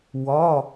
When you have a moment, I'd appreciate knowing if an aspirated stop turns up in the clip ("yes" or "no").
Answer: no